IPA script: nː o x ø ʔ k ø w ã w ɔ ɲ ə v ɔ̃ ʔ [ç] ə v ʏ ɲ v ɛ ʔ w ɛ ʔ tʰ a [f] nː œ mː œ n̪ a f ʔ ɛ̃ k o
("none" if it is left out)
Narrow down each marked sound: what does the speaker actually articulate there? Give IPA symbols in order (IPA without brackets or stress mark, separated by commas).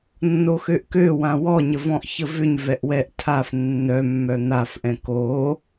ç, f